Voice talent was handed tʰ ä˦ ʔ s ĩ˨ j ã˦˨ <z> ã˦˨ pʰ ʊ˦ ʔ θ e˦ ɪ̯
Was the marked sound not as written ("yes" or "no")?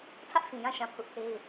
yes